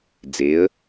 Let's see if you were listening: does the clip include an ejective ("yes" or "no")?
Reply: no